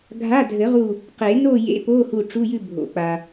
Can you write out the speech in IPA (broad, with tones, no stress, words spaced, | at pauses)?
ɡʱa˧˥˧dʱɘ˨˩˦ʁu˧˩ | qe˨˩˦ no˥˨jḛ˧˥˧po˧˥˧hu˧˩ ʈ͡ʂu˧˥˧jʉ˥˨ bʱo̰˩k͡pa˩